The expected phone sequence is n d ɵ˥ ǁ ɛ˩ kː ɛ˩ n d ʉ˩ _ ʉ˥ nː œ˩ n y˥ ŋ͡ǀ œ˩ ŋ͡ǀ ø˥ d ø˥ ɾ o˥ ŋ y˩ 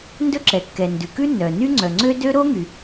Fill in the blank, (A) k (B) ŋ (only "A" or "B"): A